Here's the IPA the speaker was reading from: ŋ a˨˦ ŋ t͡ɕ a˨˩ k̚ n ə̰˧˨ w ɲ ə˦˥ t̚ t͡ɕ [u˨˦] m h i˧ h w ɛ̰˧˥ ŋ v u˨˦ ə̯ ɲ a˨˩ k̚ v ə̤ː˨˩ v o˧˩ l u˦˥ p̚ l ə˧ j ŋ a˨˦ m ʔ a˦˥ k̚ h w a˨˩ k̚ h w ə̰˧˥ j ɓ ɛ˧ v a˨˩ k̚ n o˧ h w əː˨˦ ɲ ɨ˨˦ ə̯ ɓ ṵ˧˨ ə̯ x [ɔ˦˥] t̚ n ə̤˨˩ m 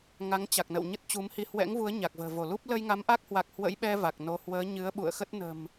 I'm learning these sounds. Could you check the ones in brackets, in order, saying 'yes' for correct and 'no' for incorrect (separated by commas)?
yes, no